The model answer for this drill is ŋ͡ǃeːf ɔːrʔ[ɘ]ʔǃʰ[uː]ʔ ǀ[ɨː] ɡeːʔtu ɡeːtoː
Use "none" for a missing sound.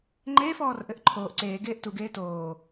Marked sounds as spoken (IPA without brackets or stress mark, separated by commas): ɘ, oː, eː